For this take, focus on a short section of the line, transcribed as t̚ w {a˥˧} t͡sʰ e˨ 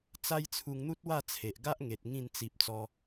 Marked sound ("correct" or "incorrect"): correct